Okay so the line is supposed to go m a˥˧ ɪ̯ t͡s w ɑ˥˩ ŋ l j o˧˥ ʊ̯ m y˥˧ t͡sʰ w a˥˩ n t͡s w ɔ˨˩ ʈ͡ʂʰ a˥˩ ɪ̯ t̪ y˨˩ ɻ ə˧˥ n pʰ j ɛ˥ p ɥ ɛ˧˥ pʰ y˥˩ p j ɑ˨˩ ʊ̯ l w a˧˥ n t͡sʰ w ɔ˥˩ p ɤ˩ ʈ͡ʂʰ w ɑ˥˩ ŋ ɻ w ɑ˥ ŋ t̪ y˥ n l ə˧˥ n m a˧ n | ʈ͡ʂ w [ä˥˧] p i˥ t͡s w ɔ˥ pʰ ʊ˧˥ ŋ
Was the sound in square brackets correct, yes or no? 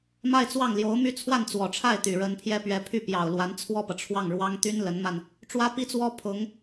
no